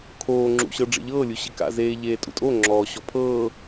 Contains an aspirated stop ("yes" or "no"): yes